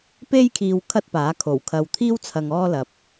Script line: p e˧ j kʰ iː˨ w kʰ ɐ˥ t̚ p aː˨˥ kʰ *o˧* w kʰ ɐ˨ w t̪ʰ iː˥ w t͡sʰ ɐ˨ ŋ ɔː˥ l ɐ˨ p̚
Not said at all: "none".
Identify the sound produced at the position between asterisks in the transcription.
o˨˩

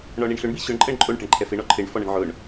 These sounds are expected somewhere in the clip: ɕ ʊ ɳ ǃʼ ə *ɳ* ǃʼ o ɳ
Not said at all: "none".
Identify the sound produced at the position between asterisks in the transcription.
ɳ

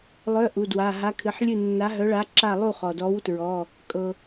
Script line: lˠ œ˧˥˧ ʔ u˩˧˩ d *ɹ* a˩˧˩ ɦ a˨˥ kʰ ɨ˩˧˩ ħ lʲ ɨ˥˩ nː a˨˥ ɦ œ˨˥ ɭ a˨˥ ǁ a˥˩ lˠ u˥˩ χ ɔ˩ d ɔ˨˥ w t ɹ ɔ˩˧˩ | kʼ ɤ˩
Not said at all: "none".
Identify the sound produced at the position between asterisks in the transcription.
w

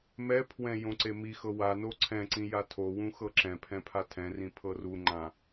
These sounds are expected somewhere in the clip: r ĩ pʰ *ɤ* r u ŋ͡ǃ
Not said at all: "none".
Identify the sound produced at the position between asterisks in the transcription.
ɤ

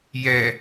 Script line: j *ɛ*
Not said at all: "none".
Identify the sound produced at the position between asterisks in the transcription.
ɛ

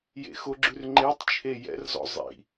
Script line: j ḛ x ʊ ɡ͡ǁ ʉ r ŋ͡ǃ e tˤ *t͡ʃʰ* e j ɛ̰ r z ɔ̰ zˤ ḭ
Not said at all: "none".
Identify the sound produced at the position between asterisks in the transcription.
t͡ʃʰ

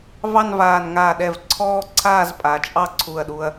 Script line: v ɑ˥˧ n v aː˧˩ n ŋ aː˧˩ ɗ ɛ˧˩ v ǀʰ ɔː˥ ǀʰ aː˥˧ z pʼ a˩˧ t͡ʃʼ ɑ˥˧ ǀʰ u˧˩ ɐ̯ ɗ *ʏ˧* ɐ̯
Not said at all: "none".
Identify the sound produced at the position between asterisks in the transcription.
u˧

